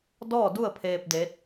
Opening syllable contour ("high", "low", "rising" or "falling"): falling